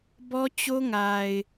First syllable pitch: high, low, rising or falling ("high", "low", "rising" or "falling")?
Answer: high